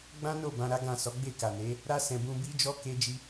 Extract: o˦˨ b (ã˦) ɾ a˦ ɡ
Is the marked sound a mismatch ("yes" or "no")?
yes